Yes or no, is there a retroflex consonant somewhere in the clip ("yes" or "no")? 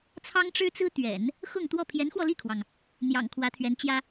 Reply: yes